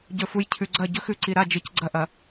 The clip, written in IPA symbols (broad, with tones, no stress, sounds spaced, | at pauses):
ɟ ɵ˨ f u˨ j cʰ ʉ˨ ɡ͡ǀ ɐ˦˨ ɟ ɵ˦ x ʉ˨ ǀ i˨ ɾ a˦˨ d͡ʒ ɨ˨ c ɡ͡ǀ ɐ˦ ʔ ɐ˨